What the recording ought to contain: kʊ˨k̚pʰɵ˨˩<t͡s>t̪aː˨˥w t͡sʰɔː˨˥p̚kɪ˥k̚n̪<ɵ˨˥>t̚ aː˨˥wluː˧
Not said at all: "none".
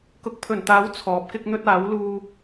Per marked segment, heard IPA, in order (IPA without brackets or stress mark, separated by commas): n, ɵ˥